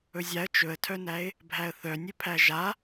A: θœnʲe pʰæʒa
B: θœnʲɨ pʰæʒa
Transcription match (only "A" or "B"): B